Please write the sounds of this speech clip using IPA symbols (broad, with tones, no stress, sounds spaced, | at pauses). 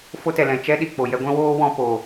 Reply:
f o˦ t ɛ˨ l ɛ̃˨ t͡ʃ ɛ˦ ɗ i˨ k͡p o˨ j ɛ˧ ɡʷ ɛ̃˦ w oː˦ w ɔ̃˧ p o˨